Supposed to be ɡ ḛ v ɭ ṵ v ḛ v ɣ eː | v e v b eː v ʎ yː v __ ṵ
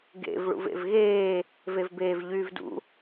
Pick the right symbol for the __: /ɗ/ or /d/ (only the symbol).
d